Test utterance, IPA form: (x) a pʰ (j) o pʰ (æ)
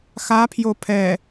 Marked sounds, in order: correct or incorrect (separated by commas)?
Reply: correct, correct, incorrect